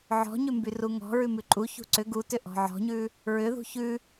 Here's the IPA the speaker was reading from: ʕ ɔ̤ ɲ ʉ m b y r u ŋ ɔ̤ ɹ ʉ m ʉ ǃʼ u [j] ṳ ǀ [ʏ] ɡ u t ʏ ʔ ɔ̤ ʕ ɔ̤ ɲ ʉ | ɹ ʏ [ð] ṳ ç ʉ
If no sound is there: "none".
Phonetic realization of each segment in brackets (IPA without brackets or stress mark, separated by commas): ç, ʏ, ð